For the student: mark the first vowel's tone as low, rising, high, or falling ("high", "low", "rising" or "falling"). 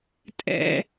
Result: high